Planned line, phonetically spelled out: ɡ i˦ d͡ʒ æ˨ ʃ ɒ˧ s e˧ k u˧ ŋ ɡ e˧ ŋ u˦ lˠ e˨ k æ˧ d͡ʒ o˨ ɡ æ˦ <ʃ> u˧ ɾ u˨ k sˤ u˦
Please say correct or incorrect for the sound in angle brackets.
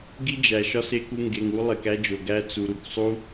incorrect